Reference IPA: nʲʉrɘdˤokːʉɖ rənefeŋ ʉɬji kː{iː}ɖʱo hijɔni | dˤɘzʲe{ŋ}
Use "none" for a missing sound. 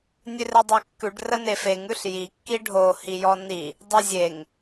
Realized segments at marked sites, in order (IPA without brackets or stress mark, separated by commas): i, ŋ